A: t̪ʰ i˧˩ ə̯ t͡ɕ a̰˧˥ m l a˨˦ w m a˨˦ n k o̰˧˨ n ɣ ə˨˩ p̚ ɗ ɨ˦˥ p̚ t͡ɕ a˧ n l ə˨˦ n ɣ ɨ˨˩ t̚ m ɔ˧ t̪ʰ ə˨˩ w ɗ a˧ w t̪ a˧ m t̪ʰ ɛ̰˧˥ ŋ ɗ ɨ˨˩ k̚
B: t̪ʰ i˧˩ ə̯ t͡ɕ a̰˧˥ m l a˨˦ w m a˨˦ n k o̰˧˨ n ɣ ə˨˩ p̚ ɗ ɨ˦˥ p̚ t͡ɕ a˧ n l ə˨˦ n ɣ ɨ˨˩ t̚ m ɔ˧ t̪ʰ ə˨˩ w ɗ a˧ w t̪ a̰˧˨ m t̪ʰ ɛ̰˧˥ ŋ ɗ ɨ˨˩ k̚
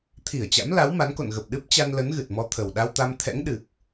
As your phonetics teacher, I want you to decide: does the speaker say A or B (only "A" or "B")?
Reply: A